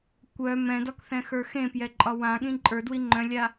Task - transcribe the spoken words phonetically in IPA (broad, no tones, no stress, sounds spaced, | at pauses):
kʷ œ m ɛ̃ d ɒ k θ ɛ̃ x ə˞ x ẽ p j ɛ ǃʼ ɒ w ã ɠ ĩ ǃʼ ə˞ d w i ŋ͡ǃ œ̃ lʲ a